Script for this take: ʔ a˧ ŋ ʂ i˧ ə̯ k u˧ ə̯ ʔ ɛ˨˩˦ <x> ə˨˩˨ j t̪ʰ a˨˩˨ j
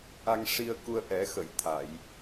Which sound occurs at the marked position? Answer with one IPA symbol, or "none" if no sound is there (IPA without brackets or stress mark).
x